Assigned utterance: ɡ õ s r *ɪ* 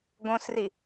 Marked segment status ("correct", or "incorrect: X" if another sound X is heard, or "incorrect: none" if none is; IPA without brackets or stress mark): incorrect: i